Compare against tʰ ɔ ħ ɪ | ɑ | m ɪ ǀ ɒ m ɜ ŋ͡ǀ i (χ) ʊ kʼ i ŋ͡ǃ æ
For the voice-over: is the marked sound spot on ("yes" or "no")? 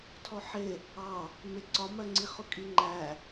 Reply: yes